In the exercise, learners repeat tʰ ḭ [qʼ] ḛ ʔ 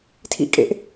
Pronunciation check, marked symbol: incorrect: kʼ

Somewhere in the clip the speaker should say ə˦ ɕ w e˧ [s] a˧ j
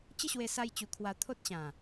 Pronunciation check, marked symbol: correct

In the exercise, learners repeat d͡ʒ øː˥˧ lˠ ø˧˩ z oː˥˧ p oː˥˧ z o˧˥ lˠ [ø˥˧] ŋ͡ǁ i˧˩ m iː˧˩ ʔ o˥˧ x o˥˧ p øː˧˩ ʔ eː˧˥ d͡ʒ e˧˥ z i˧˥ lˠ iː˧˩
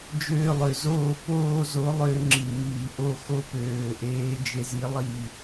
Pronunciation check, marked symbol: correct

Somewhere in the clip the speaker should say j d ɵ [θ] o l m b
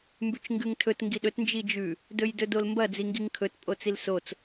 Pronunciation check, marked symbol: incorrect: d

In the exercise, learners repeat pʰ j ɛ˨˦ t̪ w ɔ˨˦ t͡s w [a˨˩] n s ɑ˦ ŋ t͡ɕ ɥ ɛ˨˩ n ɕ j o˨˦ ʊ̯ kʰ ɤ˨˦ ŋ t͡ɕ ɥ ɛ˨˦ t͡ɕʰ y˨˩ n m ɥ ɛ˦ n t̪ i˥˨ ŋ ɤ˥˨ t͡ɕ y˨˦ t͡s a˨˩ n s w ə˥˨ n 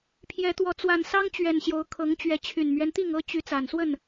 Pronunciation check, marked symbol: correct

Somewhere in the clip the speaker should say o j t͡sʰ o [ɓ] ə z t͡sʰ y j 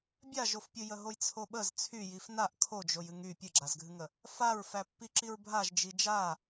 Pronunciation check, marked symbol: correct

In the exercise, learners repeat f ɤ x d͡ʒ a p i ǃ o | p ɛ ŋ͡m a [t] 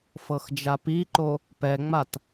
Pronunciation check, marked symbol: correct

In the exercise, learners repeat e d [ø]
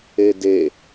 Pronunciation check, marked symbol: incorrect: e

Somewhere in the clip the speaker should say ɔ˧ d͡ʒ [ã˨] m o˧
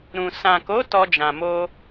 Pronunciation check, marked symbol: correct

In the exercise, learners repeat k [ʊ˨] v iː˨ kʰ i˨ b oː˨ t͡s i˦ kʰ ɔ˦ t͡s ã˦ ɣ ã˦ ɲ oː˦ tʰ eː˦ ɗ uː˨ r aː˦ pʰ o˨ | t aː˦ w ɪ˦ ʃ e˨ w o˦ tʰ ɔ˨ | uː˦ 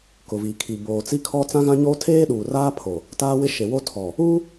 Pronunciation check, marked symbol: correct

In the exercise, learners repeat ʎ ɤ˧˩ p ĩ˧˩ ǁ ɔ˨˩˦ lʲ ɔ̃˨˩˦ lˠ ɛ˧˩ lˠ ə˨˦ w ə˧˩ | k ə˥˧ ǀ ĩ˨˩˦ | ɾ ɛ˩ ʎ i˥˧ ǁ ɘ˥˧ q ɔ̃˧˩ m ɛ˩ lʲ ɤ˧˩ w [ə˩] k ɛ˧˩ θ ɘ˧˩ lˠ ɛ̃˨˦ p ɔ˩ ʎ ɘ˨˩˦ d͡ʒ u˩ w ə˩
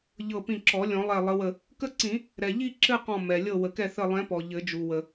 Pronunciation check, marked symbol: correct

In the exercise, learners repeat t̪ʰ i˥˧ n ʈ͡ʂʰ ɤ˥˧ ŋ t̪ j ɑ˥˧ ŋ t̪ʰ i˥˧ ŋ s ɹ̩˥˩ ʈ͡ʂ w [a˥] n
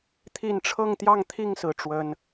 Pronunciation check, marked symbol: incorrect: ə˥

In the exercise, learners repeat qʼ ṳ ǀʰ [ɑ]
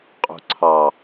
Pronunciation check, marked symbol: correct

